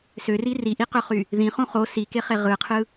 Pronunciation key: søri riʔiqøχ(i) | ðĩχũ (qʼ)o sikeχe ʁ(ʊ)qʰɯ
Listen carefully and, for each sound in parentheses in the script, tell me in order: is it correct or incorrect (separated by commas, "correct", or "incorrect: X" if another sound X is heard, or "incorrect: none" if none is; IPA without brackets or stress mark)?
incorrect: y, incorrect: χ, incorrect: ɯ